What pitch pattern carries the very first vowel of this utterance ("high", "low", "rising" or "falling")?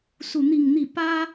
falling